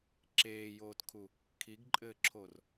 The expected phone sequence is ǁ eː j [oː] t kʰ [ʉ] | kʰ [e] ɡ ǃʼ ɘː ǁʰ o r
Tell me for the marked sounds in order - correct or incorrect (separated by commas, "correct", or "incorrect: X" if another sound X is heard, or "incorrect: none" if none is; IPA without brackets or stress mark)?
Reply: correct, incorrect: u, incorrect: i